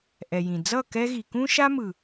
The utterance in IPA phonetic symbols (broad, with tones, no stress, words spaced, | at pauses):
ʔɛ˨jĩ˨ d͡zʌ˦˨ kɛ˦ɣi˨ kũ˦ʃa˦ mɯ˨